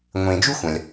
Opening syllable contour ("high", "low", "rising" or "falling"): low